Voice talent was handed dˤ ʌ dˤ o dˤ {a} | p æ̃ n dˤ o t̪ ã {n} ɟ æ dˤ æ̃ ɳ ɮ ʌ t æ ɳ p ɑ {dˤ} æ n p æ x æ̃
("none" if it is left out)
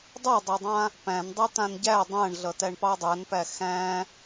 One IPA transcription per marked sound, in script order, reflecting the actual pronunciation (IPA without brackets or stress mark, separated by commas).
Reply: ã, n, dˤ